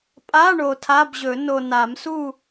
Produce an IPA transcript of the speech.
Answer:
pʼ a˧˥˧ ɳ o˨ tʰ a˧˥˧ b ʑ ɵ˨˩˦ n o˨ n a˨˩˦ m s u˥˨

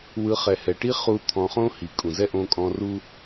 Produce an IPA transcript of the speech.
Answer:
w ɯ˧ χ ɛ˨ h ɛ˨ ʈ i˦ χ u˧ t̪ʰ ɔ̃˧ χ õ˦ h i˨ kʼ ũ˨ z ɛ˦ ʔ õ˧ kʼ ɔ̃˧ r u˦

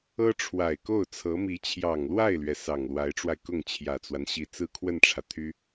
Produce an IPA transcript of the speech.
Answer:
ɤ˥ ʈ͡ʂʰ w a˨˩ ɪ̯ k o˥˩ ʊ̯ t͡sʰ ɤ˧˥ m i˧˥ t͡ɕʰ j ɑ˨˩ ŋ l w a˥˩ ɪ̯ l ɥ ɛ˩ s ɑ˨˩ ŋ l w a˧˥ ɪ̯ ʈ͡ʂ w a˧ ɪ̯ k ʊ˥˩ ŋ t͡ɕʰ j ä˨˩ t͡s w a˦ n ɕ i˨˩ t͡s ɹ̩˥ kʰ w ə˥˩ n ʈ͡ʂʰ ä˩ t̪ʰ y˥

